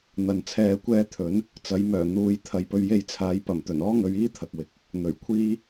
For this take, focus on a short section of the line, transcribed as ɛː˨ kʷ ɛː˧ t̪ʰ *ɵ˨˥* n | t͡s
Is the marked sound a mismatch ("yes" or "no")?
no